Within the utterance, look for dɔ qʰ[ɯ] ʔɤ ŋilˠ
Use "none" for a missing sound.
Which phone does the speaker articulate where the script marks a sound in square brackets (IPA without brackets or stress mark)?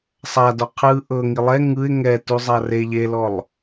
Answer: ɯ